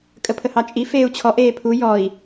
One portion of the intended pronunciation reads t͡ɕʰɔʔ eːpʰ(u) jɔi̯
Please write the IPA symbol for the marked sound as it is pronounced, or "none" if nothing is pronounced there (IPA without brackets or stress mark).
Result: u